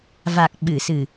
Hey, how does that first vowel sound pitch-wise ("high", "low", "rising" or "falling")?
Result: low